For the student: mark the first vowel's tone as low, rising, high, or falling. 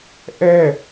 high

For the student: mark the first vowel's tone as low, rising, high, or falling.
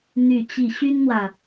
falling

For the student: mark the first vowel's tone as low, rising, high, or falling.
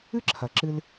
high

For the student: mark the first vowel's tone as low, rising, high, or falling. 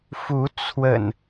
rising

